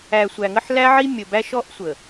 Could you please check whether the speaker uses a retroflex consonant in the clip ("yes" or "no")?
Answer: no